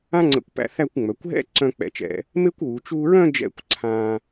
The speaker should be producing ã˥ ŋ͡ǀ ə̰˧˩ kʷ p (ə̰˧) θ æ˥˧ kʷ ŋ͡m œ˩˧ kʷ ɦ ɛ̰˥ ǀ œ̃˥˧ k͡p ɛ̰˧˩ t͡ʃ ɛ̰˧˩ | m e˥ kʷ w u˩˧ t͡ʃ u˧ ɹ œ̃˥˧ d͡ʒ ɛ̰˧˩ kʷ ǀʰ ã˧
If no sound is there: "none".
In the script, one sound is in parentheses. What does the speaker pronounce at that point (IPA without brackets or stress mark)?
æ̰˧